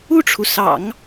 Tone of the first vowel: falling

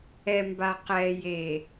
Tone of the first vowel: low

